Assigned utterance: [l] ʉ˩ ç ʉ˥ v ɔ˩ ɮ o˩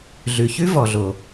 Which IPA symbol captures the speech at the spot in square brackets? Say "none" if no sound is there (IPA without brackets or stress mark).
ɮ